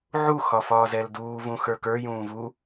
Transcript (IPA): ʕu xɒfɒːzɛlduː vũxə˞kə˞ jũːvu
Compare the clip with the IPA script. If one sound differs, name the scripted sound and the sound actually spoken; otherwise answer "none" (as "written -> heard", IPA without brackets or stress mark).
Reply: none